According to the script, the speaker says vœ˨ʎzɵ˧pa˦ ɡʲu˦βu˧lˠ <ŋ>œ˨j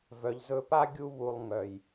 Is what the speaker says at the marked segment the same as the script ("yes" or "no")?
yes